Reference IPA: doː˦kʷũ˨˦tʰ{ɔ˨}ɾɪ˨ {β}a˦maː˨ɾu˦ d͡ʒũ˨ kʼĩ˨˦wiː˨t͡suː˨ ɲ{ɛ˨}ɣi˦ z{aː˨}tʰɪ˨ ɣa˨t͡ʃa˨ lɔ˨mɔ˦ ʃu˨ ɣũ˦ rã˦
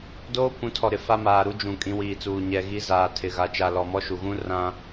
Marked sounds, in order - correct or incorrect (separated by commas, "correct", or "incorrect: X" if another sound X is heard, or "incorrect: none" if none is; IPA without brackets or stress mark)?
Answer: correct, incorrect: f, correct, correct